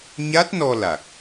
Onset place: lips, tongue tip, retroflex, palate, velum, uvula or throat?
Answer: palate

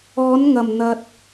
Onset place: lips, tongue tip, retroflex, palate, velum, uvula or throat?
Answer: tongue tip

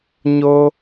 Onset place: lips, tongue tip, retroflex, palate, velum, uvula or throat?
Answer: palate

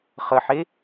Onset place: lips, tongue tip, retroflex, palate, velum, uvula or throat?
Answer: uvula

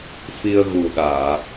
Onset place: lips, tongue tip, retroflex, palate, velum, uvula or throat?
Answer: lips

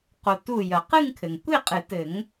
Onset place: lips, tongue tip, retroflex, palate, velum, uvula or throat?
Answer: uvula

